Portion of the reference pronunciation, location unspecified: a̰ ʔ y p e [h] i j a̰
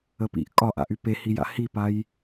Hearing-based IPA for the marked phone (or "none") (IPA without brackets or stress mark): h